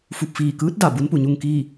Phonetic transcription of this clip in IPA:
f u˧˩ p̚ f iː˧˩ k ɯː˧˥ t̚ d a˧˩ b u˧˥ n p u˩ ɲ u˥˨ ŋ k iː˥˨

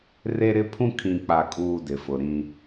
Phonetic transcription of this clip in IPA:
r e˦ ɾ ɪ˦ pʰ ũ˦ kʰ ĩ˨ k͡p a˨ kʼ uː˨ d ɪ˨ f ʊ˨ ɾ ĩ˦

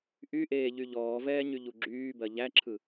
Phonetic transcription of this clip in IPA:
ʔ y ʔ eː ʎ y ʎ ɔː v ɛː ɲ y ʎ u ɡ͡ǁ yː b ɜ ʎ æ ǁʰ ɯ

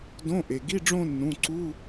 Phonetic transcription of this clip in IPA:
d õ˧˥˧ ʔ e˩ ɡ i˧˥˧ ɖ͡ʐ õ˥˧ nː ũ˩˧˩ ǀ u˧˥˧

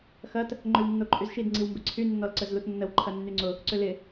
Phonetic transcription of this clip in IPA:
x ɐ t | ŋ͡ǃ ʏ w nː o ǃʼ y z ʃ i d ŋ͡ǀ i w m b ɪ ǀʰ y nː ɔ l ǀ ə z l u t nː ə w ǃʰ ɐ nː y ŋ͡ǀ ʊ | ǀ ʏ l ɪ

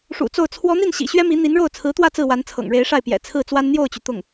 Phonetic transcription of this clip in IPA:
ʂ ṵ˨˩ t͡s o˥˩ ʊ̯ t͡sʰ w ɔ˧˥ n̪ i˥˩ n ɕ ḭ˨˩ ɕ ɥ ɛ˥ m i˧˥ n̪ i˧˥ n ɻ o˥˩ ʊ̯ t͡sʰ ɹ̩˧˥ t̪ w ä˥˧ t͡s ɹ̩˥˩ w a˧˥ n t͡sʰ ɤ̰˨˩ ŋ ɻ e˧˥ ɪ̯ ʂ a˥˩ ɪ̯ p j ɛ̰˨˩ t͡sʰ ɹ̩˥˩ t͡s w a˥ n n̪ j o˥˩ ʊ̯ t͡ɕ y˩ t̪ ʊ˥˩ ŋ

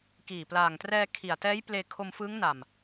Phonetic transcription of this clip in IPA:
k iː˨˩ p l aː˨˩ ŋ t r ɛː˧ kʰ i˨˩ a̯ t ɛː˦˥ j p l eː˧ kʰ o˧ m f ɯː˦˥ ŋ n a˨˩ m

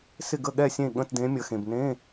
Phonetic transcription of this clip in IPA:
s ɪ˥˨ ɡ ə˥˨ ɠ ɛ˥˨ sʲ ẽ˥˨ ɠ ə̃˧˥˧ t d ẽ˧˥ mʲ ə˧˥ x ẽ˧ b n ẽ˧˥˧

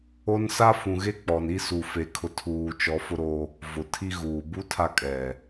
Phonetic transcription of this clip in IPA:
o˦ n s a˦ f ũ˨ ɣ e˦ k͡p ɔ˨ n i˦ s u˨ f e˨ kʰ ʊ˨ tʰ uː˨ t͡ʃ ɔ˨˦ f ʊ˦ ɾ o˦ | v ʊ˨ tʰ i˦ ɣ uː˨ b u˦ tʰ a˦ kʼ ɛ˨

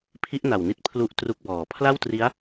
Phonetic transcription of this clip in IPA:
pʰ i˦˥ ʔ n a˨˩ w n i˦˥ t̚ pʰ l u˥˩ ʔ t r u˦˥ k̚ b ɔː˨˩ pʰ l a˥˩ w t r i˦˥ a̯

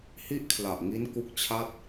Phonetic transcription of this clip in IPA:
h i˥˩ ʔ kʰ l a˨˩ ʔ ŋ i˦˥ n k u˦˥ k̚ t͡ɕʰ a˥˩ t̚

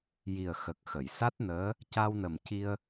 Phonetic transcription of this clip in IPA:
j i˨˩ ə̯ x ə˨˩ k̚ x ə˨˩˨ j s a˦˥ t̚ n əː˧˥ | c a˧ w n ə˨˩ m c i˧ ə̯

